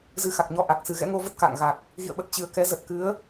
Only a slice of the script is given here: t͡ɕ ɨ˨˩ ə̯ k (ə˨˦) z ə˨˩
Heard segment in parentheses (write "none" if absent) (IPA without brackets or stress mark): ɛ˨˦